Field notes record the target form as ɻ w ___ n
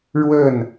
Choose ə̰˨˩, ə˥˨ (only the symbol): ə˥˨